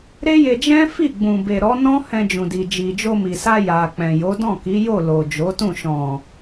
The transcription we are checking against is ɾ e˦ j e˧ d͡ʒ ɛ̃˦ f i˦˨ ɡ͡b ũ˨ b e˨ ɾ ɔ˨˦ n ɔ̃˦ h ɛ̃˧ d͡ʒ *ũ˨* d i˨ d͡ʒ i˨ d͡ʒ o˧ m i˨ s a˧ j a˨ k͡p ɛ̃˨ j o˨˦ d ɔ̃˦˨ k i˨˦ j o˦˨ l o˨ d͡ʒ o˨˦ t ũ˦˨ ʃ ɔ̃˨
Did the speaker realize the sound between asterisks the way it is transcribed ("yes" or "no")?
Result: yes